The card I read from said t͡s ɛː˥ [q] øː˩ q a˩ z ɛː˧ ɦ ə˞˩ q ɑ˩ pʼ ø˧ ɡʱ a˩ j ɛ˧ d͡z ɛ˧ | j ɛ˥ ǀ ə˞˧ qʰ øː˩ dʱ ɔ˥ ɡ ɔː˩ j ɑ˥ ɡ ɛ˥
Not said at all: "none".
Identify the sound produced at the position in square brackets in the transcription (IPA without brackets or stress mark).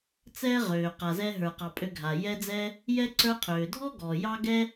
ʁ